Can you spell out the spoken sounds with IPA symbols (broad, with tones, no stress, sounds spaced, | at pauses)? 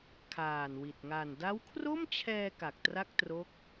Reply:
kʰ aː˨˩ n w i˨˩ t̚ ŋ a˨˩ n d a˦˥ w kʰ r o˥˩ m t͡ɕʰ ɛː˧ k a˨˩ k̚ t r a˥˩ k̚ t r o˦˥ k̚